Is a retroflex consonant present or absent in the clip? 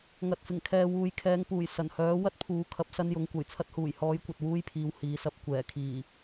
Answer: absent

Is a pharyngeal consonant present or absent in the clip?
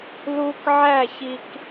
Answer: present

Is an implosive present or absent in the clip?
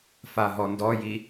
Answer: absent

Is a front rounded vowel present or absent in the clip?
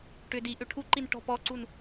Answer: present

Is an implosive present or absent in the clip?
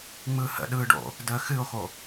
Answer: present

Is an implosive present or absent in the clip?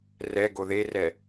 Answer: absent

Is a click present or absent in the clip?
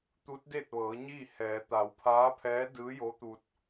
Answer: absent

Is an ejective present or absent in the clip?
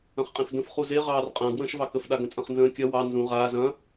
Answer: present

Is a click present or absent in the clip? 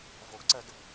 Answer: present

